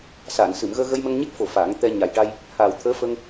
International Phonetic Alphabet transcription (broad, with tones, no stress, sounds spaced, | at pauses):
s aː˨˩˨ n s ɨ˨˩˨ m ɣ əː˧ ɣ ə˧ j m ə˧ ŋ ɲ e˦˥ k̚ f o˨˩ f a˨˩˦ ŋ t̪ ɛ˧ ɲ a˨˩ j ʈ a˧ j | h aː˨˩ w t̪ʰ əː˧˥ f ə˧ ŋ